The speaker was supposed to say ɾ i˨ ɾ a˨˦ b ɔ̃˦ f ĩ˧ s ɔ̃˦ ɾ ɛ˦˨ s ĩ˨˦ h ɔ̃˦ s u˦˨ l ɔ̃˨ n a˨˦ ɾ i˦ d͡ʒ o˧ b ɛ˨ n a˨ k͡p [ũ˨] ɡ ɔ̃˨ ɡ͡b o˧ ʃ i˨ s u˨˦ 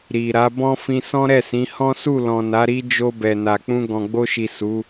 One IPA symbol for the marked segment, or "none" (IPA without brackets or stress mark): ũ˧